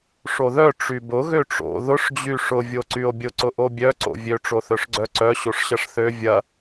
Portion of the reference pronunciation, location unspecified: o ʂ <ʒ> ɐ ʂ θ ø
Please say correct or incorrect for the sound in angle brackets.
incorrect